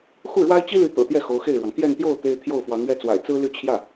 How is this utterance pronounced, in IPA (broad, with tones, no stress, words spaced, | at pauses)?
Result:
xu˥˩ɻwa˥ɪ̯t͡ɕi˥ly˧˥ t̪ɤ̰˨˩t̪jɛ˥˩ xo˧˥ʊ̯xe˥˩ɪ̯ɻwɑ˩ŋ t̪jɛ˥˧nt̪jo˥˩ʊ̯ t̪e˥ɪ̯ t̪ʰjo˥˩ʊ̯fwɑ˧˥ŋɥɛ˥˩t͡swa̰˨˩ɪ̯ t͡sɹ̩˥ly˥˧ t͡ɕʰjä˥˩